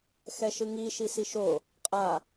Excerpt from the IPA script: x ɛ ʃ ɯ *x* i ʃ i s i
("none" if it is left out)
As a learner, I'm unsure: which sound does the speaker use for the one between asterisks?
ŋ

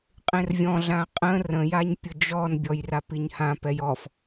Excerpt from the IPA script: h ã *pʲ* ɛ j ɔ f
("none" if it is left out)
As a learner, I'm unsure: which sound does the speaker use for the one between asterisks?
p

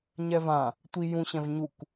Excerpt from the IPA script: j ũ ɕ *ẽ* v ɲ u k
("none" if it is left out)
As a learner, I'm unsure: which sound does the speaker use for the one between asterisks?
ɛ̃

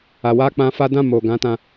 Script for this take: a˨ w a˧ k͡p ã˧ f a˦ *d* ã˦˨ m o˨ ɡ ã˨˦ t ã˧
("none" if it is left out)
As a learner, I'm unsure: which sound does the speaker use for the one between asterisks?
d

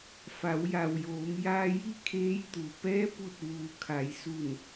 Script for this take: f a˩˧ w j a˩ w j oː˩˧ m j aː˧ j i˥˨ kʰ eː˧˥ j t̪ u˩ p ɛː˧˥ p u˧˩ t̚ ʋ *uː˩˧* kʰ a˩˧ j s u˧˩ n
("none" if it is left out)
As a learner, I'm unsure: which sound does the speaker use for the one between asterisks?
uː˩˧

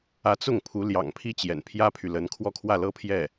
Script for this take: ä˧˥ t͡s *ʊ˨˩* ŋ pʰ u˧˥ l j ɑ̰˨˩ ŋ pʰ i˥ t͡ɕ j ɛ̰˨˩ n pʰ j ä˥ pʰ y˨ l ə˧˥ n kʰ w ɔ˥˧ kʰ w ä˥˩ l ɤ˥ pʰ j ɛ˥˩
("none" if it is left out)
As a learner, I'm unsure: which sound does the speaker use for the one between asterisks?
ʊ˥˩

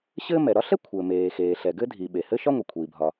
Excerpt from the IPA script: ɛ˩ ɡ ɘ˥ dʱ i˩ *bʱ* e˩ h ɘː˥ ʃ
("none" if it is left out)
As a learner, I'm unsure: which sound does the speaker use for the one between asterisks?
ɓ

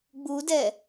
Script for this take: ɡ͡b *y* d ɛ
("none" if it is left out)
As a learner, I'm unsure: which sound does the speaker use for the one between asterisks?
u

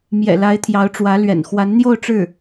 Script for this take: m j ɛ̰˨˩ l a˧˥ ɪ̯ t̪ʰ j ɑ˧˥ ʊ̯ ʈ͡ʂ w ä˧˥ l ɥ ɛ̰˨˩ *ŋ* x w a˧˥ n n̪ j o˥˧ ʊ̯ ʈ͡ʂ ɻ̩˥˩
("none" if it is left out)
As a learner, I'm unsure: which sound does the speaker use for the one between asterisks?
n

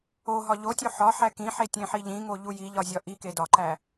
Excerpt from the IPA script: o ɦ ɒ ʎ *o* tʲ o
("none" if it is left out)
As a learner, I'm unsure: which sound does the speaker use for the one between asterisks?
o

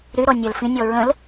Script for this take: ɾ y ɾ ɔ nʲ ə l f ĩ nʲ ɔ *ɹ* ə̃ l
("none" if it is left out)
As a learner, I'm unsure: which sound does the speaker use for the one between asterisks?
ɹ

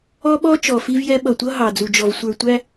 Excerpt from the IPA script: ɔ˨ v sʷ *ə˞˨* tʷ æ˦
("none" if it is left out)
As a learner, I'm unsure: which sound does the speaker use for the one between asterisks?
ə˞˨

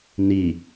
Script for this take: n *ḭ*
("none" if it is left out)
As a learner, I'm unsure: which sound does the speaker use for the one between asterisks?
i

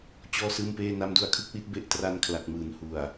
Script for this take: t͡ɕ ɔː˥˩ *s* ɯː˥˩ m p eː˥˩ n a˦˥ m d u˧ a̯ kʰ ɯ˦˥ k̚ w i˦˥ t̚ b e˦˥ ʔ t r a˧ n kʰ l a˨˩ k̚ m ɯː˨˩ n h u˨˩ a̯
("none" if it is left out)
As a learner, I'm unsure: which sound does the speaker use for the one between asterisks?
s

